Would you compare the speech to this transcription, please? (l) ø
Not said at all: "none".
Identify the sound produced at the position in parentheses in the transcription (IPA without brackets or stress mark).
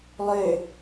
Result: lˠ